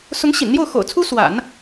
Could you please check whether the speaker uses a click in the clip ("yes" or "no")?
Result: no